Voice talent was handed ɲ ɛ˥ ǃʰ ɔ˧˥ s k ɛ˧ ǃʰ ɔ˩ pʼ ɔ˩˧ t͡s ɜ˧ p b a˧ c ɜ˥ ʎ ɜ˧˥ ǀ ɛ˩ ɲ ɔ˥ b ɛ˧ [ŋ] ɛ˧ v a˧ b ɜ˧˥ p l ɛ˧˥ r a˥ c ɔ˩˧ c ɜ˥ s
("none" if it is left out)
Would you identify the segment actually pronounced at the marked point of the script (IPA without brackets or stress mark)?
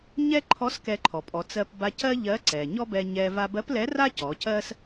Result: ɲ